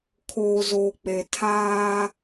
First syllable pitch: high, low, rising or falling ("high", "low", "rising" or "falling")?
low